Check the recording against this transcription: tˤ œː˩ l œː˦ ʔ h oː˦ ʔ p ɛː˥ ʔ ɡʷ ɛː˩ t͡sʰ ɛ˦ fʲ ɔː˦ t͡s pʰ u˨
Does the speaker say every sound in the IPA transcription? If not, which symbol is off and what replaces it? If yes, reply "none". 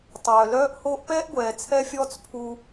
none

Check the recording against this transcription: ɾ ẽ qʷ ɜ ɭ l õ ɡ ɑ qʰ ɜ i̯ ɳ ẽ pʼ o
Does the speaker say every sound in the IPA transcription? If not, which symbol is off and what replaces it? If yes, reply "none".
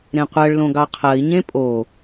ɳ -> ɲ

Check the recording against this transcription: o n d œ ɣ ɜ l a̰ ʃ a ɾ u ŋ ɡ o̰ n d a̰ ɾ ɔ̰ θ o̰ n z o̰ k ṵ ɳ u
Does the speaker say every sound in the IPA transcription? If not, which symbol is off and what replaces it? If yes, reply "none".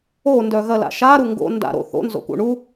ɔ̰ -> o̰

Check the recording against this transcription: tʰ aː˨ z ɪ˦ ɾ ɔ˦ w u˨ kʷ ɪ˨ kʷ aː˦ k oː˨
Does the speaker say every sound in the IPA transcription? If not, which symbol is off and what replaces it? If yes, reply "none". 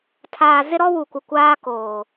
none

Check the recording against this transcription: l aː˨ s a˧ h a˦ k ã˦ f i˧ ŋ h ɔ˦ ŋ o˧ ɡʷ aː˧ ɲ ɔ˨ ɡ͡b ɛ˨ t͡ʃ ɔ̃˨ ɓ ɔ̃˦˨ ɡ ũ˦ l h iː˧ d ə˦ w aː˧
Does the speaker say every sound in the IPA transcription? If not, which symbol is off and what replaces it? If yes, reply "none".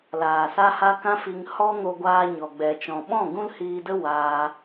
none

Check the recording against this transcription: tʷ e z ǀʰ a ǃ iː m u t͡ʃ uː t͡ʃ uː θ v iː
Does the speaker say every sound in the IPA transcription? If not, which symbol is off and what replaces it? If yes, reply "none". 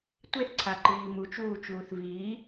z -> θ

